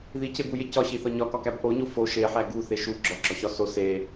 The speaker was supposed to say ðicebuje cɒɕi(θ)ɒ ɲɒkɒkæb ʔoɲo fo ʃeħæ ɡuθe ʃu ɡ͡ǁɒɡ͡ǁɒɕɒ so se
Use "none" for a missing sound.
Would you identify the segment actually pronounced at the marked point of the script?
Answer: θ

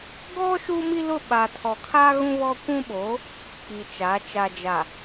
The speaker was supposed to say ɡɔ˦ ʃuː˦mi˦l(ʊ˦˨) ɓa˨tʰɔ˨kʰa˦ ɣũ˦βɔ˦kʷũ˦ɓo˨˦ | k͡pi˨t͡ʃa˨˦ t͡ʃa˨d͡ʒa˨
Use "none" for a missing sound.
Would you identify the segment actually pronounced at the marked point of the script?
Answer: ʊ˦˨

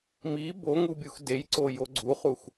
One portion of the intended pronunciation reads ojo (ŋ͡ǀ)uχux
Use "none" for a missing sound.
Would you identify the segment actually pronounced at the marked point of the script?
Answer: ɡ͡ǀ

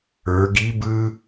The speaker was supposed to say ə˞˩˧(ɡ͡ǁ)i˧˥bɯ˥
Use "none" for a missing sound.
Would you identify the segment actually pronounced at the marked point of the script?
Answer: ɡ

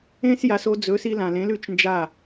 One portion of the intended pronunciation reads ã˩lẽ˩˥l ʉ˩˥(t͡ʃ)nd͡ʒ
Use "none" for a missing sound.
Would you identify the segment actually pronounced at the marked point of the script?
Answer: t͡ʃ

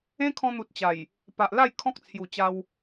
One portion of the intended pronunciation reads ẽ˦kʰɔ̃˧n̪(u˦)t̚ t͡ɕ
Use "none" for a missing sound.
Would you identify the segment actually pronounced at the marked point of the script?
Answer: u˨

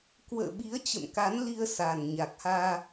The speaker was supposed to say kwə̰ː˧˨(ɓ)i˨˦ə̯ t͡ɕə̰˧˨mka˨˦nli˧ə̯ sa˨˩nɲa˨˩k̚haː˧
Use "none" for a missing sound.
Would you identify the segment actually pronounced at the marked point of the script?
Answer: ɓ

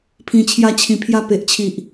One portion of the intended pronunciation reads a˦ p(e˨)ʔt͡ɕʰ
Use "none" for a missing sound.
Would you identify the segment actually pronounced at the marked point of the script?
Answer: e˨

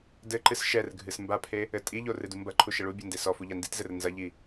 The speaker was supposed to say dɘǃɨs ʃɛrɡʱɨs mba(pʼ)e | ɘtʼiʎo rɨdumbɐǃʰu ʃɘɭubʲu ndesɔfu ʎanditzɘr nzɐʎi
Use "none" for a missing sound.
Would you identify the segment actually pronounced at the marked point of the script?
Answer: pʰ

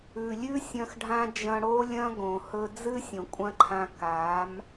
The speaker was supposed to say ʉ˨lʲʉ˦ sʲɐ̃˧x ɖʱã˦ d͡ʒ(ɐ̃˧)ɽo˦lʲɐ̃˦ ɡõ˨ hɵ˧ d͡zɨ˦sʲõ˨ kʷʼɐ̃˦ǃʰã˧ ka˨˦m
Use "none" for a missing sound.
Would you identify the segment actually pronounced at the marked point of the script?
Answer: ɐ̃˧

